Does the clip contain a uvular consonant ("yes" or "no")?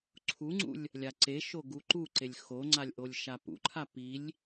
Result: no